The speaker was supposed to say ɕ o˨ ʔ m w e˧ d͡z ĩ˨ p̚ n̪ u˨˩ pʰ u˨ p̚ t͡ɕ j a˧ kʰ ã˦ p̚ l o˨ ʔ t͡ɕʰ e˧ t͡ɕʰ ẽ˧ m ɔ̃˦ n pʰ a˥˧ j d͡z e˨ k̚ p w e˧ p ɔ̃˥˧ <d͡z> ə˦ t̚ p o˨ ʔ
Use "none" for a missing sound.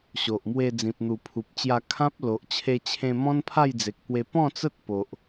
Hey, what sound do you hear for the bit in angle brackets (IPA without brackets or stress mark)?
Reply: t͡s